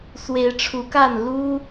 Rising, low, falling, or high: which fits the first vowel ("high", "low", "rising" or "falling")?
rising